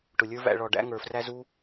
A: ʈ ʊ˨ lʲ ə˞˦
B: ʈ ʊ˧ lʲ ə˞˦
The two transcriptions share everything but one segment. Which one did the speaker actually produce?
A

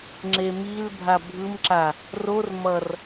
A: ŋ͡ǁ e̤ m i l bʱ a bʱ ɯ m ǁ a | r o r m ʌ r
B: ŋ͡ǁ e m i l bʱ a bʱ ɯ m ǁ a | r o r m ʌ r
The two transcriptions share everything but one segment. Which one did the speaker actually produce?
B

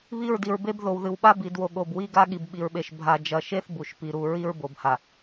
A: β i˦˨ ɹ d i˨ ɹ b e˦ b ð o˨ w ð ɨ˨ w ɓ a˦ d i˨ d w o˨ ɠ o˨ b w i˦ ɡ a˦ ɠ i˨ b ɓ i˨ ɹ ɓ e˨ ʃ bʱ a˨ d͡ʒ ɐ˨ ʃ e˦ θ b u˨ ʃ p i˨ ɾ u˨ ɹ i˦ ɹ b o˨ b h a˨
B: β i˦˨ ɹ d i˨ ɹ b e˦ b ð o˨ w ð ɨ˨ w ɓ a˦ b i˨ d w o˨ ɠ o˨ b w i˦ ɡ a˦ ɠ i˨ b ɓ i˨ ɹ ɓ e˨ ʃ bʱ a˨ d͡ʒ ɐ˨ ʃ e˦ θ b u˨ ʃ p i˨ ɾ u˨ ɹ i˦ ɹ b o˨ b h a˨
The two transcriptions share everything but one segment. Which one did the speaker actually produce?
B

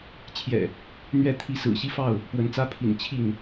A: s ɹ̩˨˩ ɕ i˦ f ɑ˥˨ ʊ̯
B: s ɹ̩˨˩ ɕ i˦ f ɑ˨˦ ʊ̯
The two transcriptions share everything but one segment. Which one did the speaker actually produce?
A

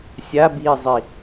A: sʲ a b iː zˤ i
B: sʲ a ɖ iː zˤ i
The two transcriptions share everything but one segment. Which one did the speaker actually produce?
A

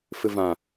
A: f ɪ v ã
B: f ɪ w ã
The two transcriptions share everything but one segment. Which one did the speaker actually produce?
A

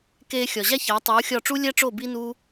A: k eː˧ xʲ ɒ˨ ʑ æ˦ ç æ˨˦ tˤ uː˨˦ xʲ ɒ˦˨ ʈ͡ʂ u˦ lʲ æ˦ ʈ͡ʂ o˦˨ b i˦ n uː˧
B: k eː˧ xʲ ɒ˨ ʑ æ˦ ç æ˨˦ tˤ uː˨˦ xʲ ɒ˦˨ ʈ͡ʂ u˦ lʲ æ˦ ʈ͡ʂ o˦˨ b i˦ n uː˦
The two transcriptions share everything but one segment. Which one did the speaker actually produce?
B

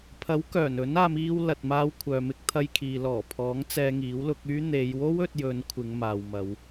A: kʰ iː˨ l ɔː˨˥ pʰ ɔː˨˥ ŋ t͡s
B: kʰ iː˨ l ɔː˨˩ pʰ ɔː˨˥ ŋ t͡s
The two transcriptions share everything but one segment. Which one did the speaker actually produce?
B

